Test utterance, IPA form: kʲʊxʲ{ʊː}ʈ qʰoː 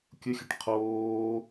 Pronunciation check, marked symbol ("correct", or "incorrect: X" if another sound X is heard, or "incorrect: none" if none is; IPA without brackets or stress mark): incorrect: ʊ